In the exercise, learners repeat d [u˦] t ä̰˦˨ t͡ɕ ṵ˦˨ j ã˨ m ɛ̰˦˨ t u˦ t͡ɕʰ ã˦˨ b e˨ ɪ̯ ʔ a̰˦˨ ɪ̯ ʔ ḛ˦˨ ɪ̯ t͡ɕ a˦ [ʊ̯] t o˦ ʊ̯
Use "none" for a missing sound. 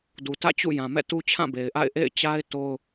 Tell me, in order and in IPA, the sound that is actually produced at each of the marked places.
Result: u˨, ɪ̯

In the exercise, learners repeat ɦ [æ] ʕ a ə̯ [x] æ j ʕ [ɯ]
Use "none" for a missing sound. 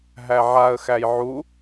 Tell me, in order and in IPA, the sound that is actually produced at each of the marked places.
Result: æ, x, u

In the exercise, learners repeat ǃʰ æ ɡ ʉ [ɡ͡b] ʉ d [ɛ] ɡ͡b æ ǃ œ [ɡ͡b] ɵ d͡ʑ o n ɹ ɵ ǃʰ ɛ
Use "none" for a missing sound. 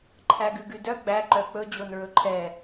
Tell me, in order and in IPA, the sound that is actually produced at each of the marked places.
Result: ɡ, œ, k͡p

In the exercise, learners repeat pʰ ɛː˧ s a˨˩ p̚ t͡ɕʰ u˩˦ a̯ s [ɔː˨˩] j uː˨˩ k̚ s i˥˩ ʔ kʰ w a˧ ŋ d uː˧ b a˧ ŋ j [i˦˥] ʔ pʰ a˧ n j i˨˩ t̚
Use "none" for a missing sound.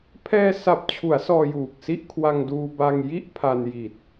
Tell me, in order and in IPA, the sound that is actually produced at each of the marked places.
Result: ɔː˧, i˥˩

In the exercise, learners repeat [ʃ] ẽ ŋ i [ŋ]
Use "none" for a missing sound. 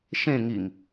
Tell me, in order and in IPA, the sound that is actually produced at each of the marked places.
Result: ʃ, ŋ

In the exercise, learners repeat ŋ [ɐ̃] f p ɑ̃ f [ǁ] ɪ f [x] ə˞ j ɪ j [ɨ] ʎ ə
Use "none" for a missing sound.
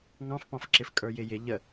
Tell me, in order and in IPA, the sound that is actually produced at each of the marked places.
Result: ɑ̃, ǁ, kʼ, ɪ

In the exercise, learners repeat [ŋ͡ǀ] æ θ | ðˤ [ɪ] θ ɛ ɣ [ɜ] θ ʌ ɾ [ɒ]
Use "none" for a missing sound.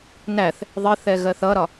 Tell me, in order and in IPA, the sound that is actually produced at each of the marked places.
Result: n, ɪ, ɜ, ɒ

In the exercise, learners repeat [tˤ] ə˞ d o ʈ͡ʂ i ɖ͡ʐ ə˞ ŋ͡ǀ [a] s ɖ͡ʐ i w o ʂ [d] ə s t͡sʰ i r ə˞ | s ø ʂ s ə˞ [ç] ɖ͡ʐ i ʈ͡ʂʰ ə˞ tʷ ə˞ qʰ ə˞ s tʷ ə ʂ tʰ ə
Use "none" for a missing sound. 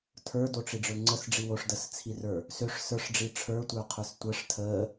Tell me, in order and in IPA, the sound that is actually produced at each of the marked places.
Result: tʰ, ə, d, ʂ

